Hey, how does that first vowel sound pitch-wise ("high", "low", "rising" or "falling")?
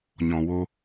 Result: low